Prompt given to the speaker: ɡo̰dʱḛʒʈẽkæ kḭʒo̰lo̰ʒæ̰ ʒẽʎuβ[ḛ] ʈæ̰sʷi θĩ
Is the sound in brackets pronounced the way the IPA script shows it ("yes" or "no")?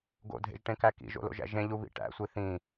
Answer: no